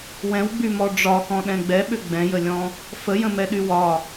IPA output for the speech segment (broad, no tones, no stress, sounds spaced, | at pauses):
w ɛ̃ w ɡ͡b y m ɔ ɖ͡ʐ ɒ k ɔ̃ ɗ ɛ̃ ɡ͡b ɛ ɓ ʏ ɡ͡b ɛ̃ j ə lʲ ɔ̃ | f ə j ə̃ m ɛ ɗ y w ɒ